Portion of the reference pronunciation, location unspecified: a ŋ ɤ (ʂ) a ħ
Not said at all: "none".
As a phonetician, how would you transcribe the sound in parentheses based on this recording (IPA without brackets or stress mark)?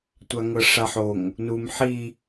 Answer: ʂ